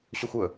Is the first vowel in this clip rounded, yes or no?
yes